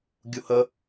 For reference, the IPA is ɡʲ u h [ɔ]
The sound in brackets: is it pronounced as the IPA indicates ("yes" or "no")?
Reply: no